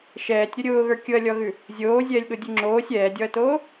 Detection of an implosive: present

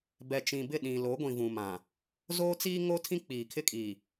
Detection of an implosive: present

